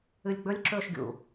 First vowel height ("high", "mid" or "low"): high